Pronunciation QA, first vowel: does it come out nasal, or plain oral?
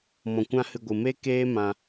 nasal